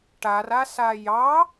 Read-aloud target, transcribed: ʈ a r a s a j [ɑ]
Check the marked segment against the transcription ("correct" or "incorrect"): correct